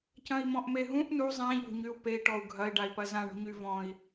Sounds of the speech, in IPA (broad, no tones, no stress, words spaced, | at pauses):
cɐ̃i̯mɔ̃ʔmeɦũʔ nu zˤẽ ʎo̤ɲyu̯pei̯ ʈɔu̯ɡʱɐi̯ ɖai̯pɐzã ɳo̤ɲyvɔ̃i̯